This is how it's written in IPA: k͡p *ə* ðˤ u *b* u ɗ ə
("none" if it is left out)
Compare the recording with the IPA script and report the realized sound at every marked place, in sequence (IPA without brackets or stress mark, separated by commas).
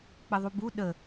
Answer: ə, b